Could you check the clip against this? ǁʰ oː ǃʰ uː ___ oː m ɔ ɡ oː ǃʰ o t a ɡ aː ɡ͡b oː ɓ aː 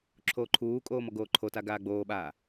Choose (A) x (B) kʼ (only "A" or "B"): B